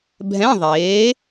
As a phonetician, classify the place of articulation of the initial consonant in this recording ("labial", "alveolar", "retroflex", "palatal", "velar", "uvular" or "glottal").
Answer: labial